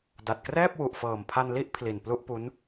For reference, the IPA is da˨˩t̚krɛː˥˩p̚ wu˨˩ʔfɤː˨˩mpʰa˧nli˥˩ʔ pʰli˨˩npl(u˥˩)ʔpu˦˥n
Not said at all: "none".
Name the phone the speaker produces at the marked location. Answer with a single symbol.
u˥˩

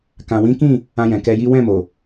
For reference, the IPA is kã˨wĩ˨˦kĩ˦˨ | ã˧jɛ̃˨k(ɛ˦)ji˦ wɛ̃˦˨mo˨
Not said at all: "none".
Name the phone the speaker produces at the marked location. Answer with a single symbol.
ɛ˧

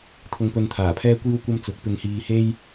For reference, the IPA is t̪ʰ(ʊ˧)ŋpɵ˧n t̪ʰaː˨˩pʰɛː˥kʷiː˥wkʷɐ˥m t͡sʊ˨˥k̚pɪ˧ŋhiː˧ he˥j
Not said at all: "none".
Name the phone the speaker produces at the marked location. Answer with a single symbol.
ʊ˧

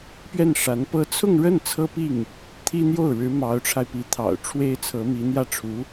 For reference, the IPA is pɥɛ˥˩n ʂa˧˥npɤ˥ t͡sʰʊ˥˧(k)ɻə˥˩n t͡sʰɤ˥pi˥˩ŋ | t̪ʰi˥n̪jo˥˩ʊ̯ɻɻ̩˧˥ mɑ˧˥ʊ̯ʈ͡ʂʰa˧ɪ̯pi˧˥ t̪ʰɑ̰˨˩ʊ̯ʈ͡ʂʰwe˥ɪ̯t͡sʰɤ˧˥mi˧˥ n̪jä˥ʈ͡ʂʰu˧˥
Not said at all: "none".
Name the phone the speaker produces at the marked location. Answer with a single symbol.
ŋ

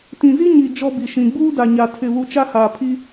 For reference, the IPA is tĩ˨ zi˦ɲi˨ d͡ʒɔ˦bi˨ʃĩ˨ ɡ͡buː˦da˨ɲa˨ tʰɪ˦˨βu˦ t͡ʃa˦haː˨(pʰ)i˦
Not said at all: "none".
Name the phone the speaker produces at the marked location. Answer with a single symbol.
pʰ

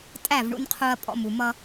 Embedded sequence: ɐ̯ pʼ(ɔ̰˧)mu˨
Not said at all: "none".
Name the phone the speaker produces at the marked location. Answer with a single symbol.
ɔ̰˧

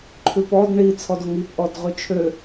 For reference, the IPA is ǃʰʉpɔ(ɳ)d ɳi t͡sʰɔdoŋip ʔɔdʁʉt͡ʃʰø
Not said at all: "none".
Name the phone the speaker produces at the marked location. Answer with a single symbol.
none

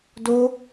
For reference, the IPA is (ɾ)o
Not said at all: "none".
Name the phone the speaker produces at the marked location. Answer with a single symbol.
d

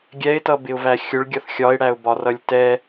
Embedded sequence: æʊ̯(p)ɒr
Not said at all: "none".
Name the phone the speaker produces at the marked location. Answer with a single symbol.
b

